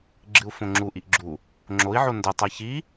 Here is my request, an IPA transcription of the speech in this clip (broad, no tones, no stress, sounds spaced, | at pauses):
ɡ͡ǁ ɨ u̯ f õ ŋ͡ǁ u ʔ i ʔ ɡ͡ǁ u | ŋ͡ǁ o i̯ ʕ o n d ɐ tˤ a ç i